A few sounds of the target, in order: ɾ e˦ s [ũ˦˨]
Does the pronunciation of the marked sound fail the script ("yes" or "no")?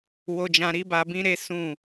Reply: no